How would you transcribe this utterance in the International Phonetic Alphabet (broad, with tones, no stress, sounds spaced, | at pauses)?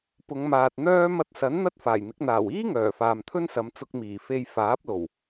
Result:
p ʊ˨˧ ŋ m aː˨ t̚ n̪ œː˥ m ɐ˧ t̚ s ɐ˨˥ n n̪ ɐ˥ t̚ f aː˨˩ j n̪ ɪ˨˥ k̚ n̪ aː˨˩ w iː˥ ŋ œː˨˩ f aː˨ m t̪ʰ ɵ˥ n s ɐ˨˧ m t͡s ʊ˧ k̚ m iː˨˩ f e˧ j f aː˨˥ p̚ l o˨˩ w